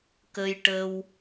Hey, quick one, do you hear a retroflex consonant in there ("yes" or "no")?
yes